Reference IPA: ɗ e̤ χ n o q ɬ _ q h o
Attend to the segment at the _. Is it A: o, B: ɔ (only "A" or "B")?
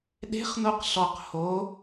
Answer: B